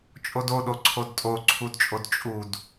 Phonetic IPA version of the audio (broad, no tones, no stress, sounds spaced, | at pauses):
t͡ʃʼ o d o ɗ o ǀʰ o d tʼ o ǀʰ u d t͡ʃʼ o d t͡ʃʼ u d